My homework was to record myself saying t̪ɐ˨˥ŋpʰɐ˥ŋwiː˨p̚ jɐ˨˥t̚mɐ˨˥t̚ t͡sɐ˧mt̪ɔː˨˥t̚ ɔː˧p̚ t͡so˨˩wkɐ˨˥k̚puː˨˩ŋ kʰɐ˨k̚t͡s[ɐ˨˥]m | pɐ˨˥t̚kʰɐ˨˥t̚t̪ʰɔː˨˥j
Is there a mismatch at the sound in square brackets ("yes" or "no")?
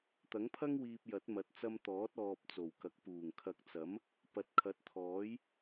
no